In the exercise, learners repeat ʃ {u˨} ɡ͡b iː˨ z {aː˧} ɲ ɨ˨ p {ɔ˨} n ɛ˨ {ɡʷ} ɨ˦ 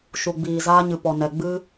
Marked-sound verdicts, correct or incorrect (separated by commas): correct, correct, correct, incorrect